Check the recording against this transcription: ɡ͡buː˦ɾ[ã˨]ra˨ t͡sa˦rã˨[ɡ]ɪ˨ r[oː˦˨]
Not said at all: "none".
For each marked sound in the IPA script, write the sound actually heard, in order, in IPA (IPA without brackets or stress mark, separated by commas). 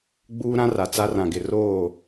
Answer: ã˦, ɡ, oː˦˨